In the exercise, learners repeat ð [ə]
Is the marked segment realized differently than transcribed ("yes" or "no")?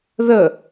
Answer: no